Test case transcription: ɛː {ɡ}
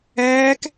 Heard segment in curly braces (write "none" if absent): k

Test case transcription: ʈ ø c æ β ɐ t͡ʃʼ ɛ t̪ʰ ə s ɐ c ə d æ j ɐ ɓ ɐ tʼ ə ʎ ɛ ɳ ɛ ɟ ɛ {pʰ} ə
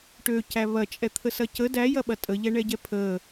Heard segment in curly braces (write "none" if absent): pʰ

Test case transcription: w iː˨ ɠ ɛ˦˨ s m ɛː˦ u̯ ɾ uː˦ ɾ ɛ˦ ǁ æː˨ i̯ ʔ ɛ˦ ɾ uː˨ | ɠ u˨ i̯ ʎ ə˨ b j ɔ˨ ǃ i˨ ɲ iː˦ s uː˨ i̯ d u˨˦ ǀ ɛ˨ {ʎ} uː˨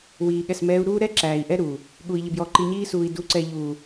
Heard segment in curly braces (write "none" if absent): ʎ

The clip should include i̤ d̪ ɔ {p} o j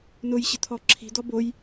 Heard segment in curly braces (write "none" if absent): b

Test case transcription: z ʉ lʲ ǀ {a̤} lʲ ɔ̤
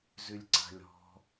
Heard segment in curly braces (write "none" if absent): a̤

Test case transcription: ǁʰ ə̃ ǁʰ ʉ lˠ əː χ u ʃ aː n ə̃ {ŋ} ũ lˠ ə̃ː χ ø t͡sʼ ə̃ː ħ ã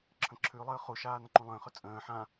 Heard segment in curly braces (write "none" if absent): ǃ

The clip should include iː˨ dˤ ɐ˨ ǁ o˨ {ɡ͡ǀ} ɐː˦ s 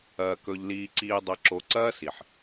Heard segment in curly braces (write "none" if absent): ǀ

